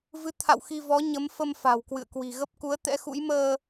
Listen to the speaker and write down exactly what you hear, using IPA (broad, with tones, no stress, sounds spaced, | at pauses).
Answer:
v ɨ˨˦ t̪ʰ a̰˧˨ w x i˧ v ɔ˨˦ ɲ ə˨˦ m f ə˧ m f a̤˨˩ w k w ɨ̰˧˨ ə̯ k w i̤˨˩ ɣ ə˦˥ p̚ k u˨˦ ə̯ t̪ ɛ̰˧˥ x ṵ˧˥ j m əː˧